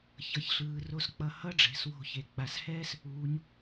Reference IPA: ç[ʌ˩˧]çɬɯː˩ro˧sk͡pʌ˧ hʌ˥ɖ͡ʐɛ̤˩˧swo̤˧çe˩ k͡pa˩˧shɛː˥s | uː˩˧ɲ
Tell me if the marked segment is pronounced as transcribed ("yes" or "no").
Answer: yes